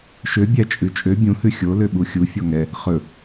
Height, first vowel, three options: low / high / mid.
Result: mid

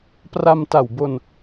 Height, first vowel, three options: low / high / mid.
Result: low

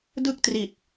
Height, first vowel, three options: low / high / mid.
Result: high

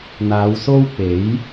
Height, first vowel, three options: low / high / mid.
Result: low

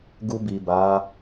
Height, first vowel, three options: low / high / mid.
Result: high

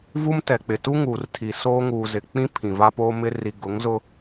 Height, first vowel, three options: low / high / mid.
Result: high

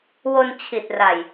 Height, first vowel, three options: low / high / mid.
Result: mid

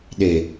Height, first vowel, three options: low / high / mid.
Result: mid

